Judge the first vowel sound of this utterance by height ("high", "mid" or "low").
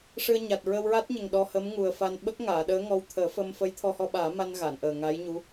high